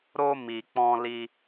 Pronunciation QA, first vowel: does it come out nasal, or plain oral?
oral